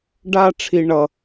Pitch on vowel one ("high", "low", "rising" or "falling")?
high